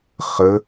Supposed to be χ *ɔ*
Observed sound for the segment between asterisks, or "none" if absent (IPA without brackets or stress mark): ə